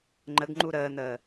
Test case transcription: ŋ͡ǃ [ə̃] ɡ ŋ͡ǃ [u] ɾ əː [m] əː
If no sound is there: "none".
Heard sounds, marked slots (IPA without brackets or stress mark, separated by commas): ə, u, n̪